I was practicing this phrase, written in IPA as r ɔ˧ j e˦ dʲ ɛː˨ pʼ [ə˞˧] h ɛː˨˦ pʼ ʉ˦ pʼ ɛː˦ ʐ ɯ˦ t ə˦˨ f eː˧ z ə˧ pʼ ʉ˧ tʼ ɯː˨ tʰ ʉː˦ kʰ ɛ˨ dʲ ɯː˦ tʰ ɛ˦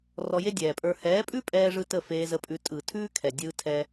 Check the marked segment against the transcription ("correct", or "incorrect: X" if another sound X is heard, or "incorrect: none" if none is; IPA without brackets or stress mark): correct